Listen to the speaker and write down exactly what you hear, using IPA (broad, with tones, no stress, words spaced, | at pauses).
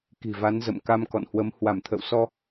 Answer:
ki̤˨˩va˨˦nzə̰˧˨m ka˧mkɔ̰˧˨nhwə˨˦m hwa˧˩mt̪ʰə̰˧˨wsɔ˧